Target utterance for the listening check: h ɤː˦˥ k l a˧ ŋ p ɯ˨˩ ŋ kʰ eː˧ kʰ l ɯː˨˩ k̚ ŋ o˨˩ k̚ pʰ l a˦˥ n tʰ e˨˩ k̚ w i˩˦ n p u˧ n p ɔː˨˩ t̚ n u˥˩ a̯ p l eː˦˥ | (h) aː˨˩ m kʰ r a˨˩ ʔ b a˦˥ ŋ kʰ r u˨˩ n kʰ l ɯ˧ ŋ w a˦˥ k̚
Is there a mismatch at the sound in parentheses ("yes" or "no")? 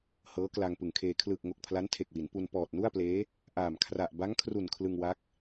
yes